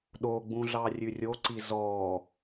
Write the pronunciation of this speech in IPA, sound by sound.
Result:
ɗ o ɡ͡b ũ ɮ ɑ rʲ ʉ rʲ o ǀ i z ɔ

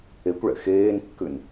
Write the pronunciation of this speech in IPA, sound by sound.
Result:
e kʷ ɭ ɛ̰ x eː n kː ʉ n

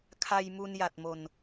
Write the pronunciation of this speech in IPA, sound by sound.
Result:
kʰ a˧ j m u˧ n j a˨˩ t̚ m o˨˩ n

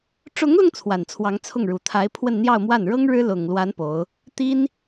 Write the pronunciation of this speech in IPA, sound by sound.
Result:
ʈ͡ʂ ʊ˧˥ ŋ l ʊ˧ ŋ t͡sʰ w a˨˩ n t͡sʰ w ɑ˧˥ ŋ t͡sʰ ʊ˥˩ ŋ ɻ u˨˩ t̪ʰ a˧˥ ɪ̯ pʰ w ə˥˧ n n̪ j ɑ˥˧ ʊ̯ m w a˥˩ n ɻ ɤ˥ ŋ ɻ ɻ̩˥ l ʊ˨˩ ŋ l w a˧˥ n p o˧˥ ʊ̯ | t̪ i˥ n

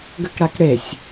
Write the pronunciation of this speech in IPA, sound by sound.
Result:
ɡ ɘ k ɽ a k ɽ e sʲ

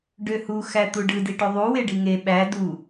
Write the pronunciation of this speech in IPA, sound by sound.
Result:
ɖ ø h u x æ t̪ u ɖ ɯ d i ʈ o ðˤ u w e ɖ i ŋ e ɓ æ d u

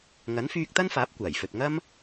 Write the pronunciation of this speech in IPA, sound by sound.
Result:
ŋ ɐ˨˥ n f yː˧ k̚ t̪ ɐ˥ n f aː˨˥ p̚ kʷ aː˨˩ j f ɵ˨ t̚ ŋ ɐ˥ m

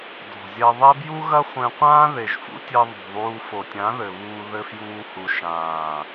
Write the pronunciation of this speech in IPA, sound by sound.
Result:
d ɔ̤˨ zʲ ɛ˧ ðˤ ɛ˦ b j u˦ ɣ ɐ˦ χʷ ẽ˧ qʷ ãː˦ ð e˨ ʒ f ṵ˦ tʲ e˧ ðˤ ṳ˨ ðˤ uː˦ f o˨ tʲ ã˨˦ ð ɘ˨ β uː˧ ð ɘ˦ f j uː˦ h u˧ ʃ ãː˨

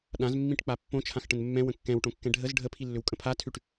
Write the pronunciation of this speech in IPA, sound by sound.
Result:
ɗ ã z mː ĩ ʈ k͡p a pː õ t͡ʃʰ ã x ʈ ə̃ n mː ɛ̃ w ə̃ kː ɛ̃ w ʈ õ kː ɛ̃ ɖʱ ə z ɖʱ ə pʰ i lː ʏ w kʼ ə̃ pʰ a tʰ ʉ ʈ

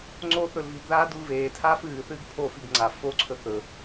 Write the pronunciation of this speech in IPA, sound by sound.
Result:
ŋ͡ǀ o θ ɵ l v i ɡ ð aː d u l v eː tʰ aː f ɨː θ ɨː ɡ pʰ o f i ɡ ŋ͡ǀ a f o ǀʰ ɵ θ ɵ

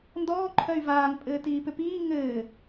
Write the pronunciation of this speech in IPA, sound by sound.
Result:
n d ɔː ǃʰ œ y̯ v aː ŋ pʼ ɘː t iː p ʏ p iː ŋ ɘː

